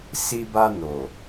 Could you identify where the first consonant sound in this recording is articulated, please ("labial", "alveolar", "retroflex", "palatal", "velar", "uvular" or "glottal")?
alveolar